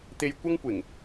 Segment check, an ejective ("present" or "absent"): absent